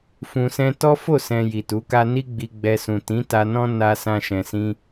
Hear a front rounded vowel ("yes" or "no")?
no